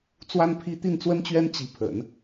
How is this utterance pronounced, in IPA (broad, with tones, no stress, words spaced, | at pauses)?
t͡swa˥npʰi˥ t̪i˥˩nt͡swə˥nt͡ɕɥɛ˥n t͡ɕi˧˥ pʰə̰˨˩˦n